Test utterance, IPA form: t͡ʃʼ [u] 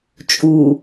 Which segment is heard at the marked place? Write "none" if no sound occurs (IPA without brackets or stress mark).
u